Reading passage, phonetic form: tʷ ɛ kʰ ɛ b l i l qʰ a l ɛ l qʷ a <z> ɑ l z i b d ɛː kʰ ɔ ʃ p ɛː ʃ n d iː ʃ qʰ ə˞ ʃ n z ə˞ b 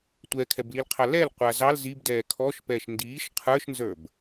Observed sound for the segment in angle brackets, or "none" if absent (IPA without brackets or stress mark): z